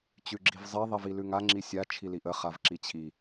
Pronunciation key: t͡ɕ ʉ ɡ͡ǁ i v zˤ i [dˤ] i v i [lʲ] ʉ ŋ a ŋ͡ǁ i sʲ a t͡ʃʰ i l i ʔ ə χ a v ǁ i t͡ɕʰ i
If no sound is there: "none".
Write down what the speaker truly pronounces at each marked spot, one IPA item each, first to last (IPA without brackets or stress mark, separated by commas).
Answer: ðˤ, l